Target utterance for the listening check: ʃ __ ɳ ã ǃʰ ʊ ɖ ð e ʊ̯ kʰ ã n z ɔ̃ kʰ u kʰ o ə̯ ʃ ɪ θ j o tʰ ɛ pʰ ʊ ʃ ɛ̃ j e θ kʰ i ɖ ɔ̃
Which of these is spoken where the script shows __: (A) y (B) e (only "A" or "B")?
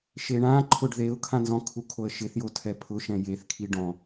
B